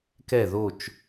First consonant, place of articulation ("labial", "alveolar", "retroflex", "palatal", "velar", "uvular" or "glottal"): velar